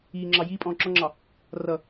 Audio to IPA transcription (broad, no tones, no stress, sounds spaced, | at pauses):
iː ŋ͡ǁ ɑ j iː pʼ ɔ̃ː ǁ ɔ ŋ͡ǁ ɑ | r ʌ